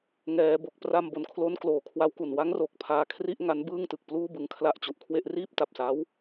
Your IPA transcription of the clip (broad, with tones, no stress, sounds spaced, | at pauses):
ŋ ɛː˩˦ b o˨˩ k̚ p r a˧ m b o˩˦ n kʰ l o˦˥ n k l oː˨˩ kʰ w a˦˥ w k u˨˩ n w a˦˥ ŋ r oː˨˩ k̚ pʰ aː˧ kʰ r i˥˩ ʔ ŋ a˦˥ n b ɯː˥˩ ŋ t ɯ˨˩ k̚ p l uː˥˩ b ɯ˧ ŋ kʰ l a˦˥ ʔ t͡ɕ u˨˩ ʔ kʰ w e˥˩ ʔ r iː˥˩ p̚ t a˨˩ p̚ s a˦˥ w